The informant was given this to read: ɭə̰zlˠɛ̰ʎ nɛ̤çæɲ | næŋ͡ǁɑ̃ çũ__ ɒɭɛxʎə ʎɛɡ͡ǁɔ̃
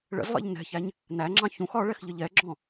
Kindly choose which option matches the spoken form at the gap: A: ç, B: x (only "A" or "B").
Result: B